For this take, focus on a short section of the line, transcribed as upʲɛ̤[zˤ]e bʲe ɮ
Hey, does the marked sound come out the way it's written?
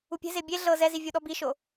no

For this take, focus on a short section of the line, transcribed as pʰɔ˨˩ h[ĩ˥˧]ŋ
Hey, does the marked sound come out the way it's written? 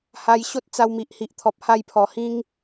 no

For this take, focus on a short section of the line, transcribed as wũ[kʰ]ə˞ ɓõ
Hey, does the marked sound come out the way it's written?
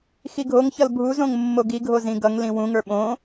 no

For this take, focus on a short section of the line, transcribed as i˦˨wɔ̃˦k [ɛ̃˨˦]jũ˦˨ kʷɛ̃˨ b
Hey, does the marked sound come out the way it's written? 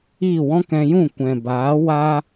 no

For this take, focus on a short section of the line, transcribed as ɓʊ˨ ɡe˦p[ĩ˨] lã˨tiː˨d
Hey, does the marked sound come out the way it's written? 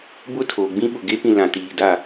yes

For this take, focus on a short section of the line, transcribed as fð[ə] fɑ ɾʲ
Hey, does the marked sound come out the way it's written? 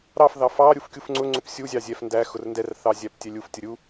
no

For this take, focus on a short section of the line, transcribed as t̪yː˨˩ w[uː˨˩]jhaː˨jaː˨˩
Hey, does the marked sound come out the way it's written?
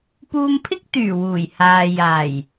yes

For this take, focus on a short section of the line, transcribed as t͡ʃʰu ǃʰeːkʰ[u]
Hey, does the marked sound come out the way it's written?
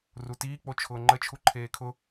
no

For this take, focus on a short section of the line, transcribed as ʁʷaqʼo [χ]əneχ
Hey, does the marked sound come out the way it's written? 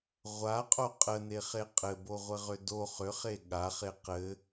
no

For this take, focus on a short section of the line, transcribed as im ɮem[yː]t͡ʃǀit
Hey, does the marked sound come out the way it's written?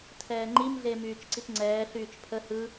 yes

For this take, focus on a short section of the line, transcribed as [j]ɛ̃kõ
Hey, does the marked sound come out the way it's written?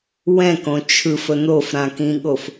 no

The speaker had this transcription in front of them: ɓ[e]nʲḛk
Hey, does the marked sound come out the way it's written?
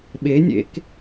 yes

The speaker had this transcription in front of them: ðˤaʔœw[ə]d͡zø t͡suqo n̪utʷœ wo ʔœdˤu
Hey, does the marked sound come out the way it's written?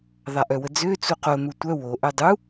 yes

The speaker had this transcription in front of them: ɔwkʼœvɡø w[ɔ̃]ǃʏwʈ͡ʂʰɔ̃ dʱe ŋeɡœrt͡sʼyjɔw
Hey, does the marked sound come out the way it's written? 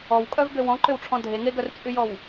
yes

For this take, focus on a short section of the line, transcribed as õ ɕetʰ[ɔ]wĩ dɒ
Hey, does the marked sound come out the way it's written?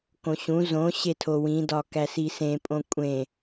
no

